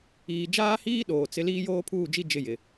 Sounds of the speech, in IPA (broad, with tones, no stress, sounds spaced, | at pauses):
iː˨ d͡ʒ aː˦ h iː˦ ɗ oː˨ t͡s ɪ˦ l iː˦ j oː˦ pʰ uː˦˨ d͡ʒ i˦ d͡ʒ ɪ˦˨ j ɪ˨